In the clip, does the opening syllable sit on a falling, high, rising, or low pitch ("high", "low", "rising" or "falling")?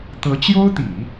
rising